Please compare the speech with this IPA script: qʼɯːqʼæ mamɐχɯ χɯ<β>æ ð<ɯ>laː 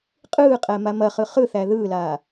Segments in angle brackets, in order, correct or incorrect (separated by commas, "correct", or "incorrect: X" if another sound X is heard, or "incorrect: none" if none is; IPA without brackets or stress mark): incorrect: θ, incorrect: ɯː